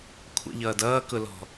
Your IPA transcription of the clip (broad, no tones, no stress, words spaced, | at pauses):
kʷʰə̰ʎʌːd ʌːkʊlɔ̤